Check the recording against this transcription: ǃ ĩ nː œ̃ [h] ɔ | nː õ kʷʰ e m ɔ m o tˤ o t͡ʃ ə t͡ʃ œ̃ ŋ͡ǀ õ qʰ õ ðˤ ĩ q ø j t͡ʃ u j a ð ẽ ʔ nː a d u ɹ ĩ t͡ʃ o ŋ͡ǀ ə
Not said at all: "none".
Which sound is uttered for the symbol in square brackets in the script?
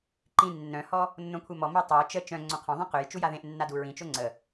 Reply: h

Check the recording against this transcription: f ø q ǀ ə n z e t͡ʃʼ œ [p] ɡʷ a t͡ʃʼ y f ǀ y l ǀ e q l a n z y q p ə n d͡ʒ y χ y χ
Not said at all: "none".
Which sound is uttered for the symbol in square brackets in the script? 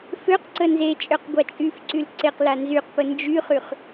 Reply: q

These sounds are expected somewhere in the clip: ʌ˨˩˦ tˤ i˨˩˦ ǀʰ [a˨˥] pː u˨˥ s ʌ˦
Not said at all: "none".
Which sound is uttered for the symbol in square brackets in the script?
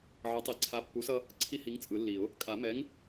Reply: a˨˥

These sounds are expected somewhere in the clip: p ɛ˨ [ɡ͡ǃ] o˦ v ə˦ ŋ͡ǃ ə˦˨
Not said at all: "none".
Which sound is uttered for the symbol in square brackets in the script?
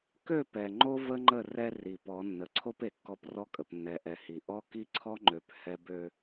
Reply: ŋ͡ǃ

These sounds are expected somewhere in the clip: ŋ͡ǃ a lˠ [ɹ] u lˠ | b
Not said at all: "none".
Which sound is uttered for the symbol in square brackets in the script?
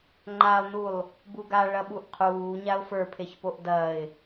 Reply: n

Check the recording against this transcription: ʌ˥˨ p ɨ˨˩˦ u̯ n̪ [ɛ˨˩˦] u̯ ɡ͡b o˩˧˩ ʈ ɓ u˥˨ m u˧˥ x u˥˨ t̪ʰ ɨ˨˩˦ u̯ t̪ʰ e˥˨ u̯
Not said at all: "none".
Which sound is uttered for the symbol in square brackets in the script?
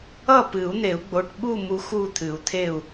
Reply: e˨˩˦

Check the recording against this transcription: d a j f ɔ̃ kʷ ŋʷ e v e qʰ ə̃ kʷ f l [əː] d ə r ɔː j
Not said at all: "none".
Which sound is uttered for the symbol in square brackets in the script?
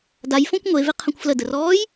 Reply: ə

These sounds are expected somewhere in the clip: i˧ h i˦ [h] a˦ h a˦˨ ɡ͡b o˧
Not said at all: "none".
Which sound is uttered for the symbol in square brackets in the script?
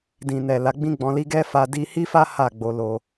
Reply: f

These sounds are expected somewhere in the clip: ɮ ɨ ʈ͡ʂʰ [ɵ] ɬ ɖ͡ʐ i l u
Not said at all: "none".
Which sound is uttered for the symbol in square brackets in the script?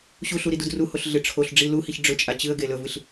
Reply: o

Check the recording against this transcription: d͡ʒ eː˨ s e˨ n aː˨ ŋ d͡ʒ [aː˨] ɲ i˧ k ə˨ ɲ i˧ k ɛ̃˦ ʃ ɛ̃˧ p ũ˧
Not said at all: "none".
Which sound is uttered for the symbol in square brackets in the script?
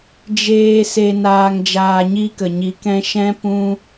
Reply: aː˨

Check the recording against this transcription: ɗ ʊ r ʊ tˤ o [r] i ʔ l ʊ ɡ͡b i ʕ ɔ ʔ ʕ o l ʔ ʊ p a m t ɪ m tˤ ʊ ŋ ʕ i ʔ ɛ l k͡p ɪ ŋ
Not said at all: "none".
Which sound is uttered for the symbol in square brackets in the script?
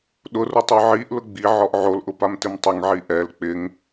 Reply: ʕ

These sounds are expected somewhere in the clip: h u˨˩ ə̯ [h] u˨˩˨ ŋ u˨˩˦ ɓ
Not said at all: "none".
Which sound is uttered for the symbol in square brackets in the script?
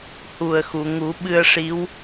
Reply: x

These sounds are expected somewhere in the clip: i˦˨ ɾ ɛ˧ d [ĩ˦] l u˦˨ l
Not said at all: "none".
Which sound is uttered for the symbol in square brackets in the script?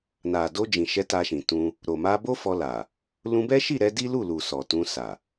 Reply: i˦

